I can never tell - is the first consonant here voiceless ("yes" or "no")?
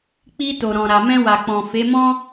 yes